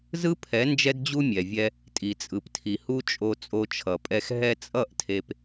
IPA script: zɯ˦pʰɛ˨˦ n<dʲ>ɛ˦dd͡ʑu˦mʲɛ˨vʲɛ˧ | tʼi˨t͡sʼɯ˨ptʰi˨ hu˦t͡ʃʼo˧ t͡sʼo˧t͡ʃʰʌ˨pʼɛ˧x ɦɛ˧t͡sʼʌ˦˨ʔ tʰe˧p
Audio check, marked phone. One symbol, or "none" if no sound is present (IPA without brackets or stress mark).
d͡ʒ